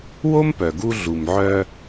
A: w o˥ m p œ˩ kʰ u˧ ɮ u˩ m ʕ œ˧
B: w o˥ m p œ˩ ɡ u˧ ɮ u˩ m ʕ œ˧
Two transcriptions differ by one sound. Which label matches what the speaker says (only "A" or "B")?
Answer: B